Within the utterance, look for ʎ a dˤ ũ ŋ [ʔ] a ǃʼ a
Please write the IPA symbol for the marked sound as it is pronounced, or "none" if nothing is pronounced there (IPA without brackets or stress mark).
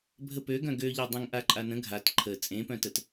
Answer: ʔ